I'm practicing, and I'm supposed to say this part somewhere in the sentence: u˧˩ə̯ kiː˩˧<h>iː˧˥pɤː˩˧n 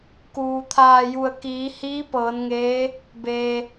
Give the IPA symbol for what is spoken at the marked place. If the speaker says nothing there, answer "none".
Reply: h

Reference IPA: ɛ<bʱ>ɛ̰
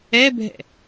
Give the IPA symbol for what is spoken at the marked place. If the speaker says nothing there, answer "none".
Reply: bʱ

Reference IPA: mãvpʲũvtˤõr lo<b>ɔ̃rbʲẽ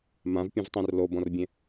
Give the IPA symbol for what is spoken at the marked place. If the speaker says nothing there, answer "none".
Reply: b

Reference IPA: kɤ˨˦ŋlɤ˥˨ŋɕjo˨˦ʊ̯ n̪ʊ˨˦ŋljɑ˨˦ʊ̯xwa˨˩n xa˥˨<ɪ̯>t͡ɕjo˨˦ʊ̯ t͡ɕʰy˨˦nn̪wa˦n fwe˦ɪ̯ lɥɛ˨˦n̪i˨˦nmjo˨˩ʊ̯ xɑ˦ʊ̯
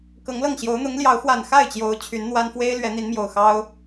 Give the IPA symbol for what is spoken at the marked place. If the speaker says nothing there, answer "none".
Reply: ɪ̯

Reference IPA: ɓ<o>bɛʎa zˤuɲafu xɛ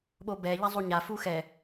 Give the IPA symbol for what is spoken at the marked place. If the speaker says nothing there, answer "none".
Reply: o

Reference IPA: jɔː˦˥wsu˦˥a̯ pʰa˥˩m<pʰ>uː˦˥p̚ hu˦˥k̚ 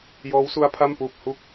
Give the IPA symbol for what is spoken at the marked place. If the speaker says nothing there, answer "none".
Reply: p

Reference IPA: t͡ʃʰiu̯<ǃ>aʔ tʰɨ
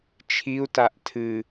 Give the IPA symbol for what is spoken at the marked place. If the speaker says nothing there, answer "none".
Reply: t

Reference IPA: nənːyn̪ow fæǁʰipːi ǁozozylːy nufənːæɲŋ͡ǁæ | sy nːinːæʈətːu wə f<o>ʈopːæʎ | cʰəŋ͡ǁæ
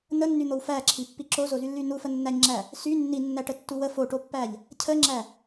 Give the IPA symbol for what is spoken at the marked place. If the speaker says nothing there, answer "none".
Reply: o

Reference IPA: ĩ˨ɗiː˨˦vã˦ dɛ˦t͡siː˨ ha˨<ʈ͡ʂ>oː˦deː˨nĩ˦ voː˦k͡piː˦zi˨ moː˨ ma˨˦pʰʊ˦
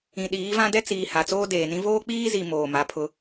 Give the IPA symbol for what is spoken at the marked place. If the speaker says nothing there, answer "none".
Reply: t͡s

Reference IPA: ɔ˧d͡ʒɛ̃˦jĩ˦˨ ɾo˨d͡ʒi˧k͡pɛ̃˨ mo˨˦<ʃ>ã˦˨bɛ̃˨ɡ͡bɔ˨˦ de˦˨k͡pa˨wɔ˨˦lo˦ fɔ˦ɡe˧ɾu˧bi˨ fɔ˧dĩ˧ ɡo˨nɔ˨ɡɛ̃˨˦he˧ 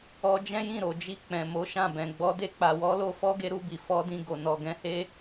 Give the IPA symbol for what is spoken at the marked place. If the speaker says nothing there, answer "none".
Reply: ʃ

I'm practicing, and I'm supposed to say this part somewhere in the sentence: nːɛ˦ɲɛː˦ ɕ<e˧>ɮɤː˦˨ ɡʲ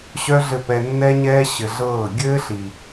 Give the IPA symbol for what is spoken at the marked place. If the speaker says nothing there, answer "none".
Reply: ɘ˧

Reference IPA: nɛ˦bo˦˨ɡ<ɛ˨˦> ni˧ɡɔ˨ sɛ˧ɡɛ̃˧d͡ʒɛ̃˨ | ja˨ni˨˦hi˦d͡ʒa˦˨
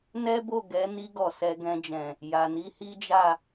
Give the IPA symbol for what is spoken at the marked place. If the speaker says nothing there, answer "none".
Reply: ɛ˨˦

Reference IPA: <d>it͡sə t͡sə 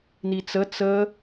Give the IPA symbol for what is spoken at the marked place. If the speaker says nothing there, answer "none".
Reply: n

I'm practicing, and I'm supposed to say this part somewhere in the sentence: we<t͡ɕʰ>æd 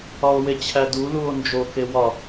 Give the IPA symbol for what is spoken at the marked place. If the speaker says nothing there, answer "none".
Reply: t͡ɕʰ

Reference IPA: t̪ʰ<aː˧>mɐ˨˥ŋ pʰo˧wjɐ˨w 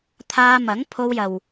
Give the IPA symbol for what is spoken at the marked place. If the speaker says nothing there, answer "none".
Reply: aː˧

